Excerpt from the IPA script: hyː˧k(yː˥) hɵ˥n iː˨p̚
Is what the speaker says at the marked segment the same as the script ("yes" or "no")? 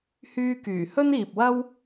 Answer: no